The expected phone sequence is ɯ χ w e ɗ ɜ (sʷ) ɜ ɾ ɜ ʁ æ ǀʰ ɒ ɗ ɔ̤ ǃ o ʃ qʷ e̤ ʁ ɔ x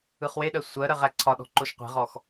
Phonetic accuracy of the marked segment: correct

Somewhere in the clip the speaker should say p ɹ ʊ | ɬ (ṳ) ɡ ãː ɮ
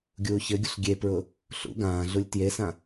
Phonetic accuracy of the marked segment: incorrect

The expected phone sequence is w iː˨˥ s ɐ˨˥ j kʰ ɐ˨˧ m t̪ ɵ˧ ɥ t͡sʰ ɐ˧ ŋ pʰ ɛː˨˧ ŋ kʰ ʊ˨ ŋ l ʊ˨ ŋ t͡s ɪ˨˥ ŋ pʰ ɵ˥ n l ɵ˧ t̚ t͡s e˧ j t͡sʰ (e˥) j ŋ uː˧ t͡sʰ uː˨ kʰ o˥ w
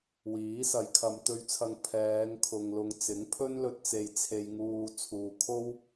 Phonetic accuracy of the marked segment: incorrect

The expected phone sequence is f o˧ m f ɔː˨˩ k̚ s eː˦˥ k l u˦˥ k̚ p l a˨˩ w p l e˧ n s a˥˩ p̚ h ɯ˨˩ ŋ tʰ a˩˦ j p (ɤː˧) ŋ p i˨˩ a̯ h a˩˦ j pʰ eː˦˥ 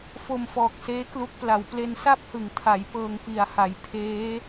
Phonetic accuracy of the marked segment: correct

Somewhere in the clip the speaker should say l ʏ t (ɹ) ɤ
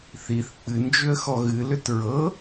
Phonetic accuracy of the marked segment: correct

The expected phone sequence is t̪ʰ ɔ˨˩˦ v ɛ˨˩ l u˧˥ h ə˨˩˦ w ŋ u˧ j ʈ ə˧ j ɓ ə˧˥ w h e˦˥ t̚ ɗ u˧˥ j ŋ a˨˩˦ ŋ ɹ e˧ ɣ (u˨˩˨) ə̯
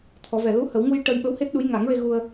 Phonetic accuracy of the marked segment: incorrect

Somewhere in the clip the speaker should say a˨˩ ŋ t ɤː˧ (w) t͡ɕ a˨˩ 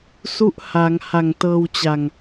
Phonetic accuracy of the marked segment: correct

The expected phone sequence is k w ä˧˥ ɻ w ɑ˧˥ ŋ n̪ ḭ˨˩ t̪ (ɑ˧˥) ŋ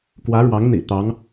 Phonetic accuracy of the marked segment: correct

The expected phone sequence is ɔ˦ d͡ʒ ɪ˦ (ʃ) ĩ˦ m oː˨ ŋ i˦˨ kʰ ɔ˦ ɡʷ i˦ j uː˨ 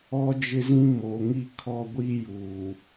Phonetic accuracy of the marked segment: incorrect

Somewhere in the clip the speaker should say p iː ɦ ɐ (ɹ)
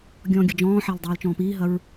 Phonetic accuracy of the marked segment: correct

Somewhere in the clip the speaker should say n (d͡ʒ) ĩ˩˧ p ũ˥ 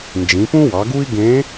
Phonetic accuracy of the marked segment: correct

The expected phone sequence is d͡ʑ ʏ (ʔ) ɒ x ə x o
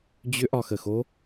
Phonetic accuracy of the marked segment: correct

